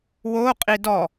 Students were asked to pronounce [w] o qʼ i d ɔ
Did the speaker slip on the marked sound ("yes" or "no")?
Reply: no